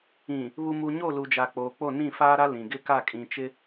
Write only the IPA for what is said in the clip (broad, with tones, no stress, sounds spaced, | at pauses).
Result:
ĩ˨ | β u˨ m u˨ ɲ o˦˨ l u˨ d͡ʒ a˨ k͡p oː˨ k͡p o˦˨ n ĩ˦˨ f aː˦ ɾ a˦ l ĩ˨ ɡ ɪ˦ k a˦˨ kʼ ĩ˨ t͡ʃ ɪ˦